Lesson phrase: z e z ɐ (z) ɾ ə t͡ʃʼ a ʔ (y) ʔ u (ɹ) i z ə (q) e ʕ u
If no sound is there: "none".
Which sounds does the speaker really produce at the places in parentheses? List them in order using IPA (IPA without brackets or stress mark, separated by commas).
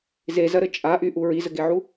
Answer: none, y, ɹ, ɡ